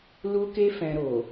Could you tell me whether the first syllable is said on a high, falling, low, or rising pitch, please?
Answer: high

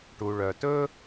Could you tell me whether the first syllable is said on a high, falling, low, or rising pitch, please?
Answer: low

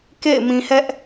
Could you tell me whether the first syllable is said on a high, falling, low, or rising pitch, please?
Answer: falling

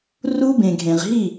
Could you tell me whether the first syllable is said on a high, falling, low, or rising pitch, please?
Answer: high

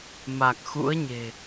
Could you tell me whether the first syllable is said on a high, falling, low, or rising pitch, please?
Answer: low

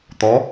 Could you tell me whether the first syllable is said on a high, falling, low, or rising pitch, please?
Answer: rising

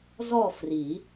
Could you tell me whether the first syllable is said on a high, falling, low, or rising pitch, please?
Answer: falling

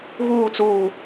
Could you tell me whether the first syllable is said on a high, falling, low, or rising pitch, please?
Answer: falling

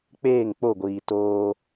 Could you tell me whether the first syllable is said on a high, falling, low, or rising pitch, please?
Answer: falling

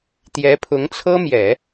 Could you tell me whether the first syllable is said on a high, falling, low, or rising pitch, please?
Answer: rising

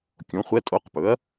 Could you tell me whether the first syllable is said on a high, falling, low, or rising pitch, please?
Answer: rising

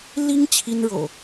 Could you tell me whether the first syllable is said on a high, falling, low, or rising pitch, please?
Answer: high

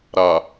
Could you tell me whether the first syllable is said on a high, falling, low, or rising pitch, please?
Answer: low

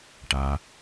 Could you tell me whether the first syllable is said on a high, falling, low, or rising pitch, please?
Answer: low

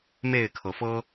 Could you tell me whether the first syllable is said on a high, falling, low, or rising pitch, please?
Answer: falling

